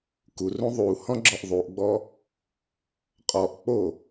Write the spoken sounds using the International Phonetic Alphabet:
kurũ ðˤu hɔ̃ɡ͡ǁɔʔðˤuʔɡ͡bɔ | qʼɔʔk͡po

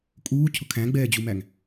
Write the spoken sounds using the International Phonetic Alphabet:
kʼuːcʰʊ kʰæ̃ɡ͡bɛːd͡ʑumæŋ

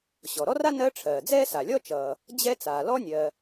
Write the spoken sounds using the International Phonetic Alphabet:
ɕɔ˩ɾɔ˥ra˥ nɜ˥ ʈ͡ʂʰɜː˩d͡zɛː˥sa˩lʲɔ˥ t͡ʃʌː˩ | d͡ʑɛ˥ t͡saː˩ lɔ˥nʲɜ˩

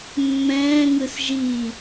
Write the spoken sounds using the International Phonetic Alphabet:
mːɛ̃ːŋɯs ʒiː

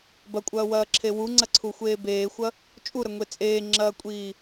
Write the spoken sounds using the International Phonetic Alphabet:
bɐkʷʼɐːwɐːǁʰe wuŋ͡ǀɐǀʰuxʷeː beːxʷɐ | t͡ʃʼuɾɐŋʷe t͡sʼeːŋ͡ǁɐːkʷʼiː

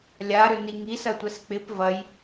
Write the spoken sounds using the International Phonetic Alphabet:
lʲaɾʏni ŋisɐtʷɛs k͡pɪp vɐj

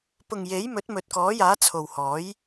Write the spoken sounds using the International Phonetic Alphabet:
pʊ˨ŋje˨˥jmɵ˨˥t̚ mɵ˨t̚kɔː˨˥jaː˨˥ t͡sʰo˨whɔː˨˥j

